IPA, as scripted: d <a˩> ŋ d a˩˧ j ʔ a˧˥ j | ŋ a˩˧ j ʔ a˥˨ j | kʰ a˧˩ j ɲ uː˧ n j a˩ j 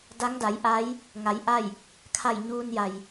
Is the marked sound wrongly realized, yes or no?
yes